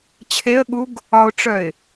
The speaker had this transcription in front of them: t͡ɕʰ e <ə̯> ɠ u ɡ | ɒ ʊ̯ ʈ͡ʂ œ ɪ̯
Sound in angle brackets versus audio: correct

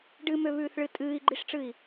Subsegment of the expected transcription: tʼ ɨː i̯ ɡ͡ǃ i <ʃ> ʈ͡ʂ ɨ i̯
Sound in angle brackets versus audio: incorrect: ʂ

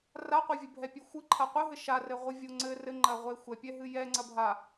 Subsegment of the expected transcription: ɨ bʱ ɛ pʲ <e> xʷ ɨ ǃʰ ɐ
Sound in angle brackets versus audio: incorrect: ɨ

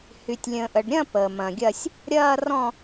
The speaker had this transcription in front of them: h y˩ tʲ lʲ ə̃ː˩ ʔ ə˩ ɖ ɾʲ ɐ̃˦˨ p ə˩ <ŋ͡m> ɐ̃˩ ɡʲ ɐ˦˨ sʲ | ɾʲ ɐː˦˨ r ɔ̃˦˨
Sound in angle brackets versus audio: incorrect: m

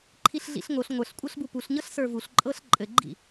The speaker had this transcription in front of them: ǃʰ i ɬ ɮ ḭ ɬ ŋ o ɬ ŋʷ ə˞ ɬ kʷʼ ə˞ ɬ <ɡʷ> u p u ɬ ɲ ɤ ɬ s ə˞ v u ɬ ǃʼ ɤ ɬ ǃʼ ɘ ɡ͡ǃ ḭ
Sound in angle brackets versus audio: incorrect: b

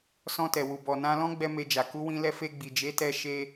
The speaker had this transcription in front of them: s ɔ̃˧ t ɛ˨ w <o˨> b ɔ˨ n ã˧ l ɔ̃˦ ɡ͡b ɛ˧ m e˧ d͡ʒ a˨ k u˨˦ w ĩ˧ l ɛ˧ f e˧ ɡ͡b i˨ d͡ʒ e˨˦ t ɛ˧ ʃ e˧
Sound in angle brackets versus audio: incorrect: u˨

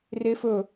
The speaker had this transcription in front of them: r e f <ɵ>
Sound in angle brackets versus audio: correct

